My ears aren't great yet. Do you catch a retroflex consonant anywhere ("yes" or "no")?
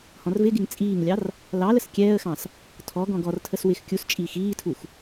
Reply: no